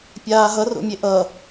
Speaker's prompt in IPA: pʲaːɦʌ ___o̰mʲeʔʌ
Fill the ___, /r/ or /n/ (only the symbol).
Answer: r